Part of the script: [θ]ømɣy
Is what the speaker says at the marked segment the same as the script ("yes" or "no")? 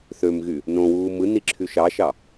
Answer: yes